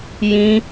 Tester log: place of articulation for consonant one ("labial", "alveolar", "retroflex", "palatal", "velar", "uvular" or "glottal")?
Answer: palatal